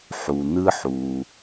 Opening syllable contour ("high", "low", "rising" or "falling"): low